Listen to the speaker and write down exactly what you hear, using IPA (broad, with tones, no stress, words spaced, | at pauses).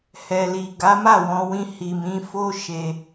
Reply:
hɛ˨li˨ ɡa˨˦ma˦˨wɔ̃˧wĩ˧ hi˨mĩ˨˦fo˦ ʃe˧